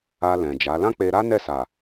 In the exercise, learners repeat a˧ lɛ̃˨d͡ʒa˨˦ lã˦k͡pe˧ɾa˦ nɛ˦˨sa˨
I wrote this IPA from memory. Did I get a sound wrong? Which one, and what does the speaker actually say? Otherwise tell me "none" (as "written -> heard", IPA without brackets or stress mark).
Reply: none